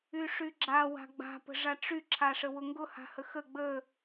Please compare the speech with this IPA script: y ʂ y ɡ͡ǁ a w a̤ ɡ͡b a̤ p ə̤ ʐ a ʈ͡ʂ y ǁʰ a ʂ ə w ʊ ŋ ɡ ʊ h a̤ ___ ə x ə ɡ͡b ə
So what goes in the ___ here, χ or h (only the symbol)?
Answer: h